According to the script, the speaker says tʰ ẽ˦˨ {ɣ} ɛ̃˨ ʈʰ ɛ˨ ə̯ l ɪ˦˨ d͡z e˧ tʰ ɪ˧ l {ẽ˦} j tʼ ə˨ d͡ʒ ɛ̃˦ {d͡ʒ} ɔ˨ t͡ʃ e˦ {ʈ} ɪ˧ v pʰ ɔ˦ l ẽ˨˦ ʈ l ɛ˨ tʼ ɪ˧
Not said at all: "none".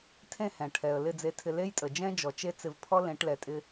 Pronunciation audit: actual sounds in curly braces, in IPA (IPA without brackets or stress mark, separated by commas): h, e˦, d͡ʒ, t͡s